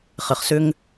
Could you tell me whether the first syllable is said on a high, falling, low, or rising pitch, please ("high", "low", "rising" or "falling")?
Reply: low